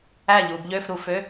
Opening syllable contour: falling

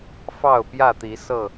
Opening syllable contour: falling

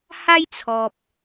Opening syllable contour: high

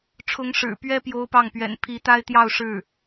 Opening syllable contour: rising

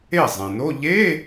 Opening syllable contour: falling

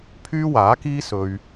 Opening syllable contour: high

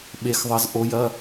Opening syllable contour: rising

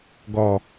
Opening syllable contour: low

